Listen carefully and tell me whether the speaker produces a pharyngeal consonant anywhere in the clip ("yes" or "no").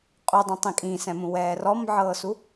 yes